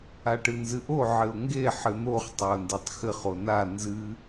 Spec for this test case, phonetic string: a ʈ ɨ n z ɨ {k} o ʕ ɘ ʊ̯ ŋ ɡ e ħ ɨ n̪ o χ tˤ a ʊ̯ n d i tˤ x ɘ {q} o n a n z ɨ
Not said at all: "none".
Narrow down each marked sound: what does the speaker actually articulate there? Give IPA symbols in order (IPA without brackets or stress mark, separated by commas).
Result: ʔ, χ